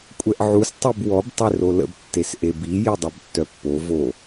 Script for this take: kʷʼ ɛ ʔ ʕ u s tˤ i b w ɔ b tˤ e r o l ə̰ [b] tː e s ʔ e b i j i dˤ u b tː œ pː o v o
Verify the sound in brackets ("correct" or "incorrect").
correct